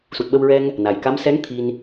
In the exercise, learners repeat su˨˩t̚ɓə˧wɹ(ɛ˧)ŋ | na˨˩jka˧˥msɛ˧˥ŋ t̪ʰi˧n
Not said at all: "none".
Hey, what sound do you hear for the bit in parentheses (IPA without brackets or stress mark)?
ɛ˧